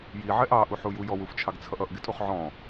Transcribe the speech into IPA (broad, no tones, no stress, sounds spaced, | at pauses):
j i ʕ ɛ ʔ ɑ ʔ u ħ u j u j ɔ w u f t͡ʃʰ ɑ ɡ t͡sʰ ʌ ʔ ʌ ʔ ɡ ɪ tʼ u χ ʕ ɔ̃